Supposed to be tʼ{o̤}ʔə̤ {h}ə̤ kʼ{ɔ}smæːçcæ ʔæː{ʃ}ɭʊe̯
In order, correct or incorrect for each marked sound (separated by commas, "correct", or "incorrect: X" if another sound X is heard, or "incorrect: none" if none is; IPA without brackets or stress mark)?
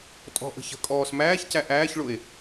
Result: incorrect: ɔ̤, incorrect: ç, incorrect: ɔː, incorrect: ç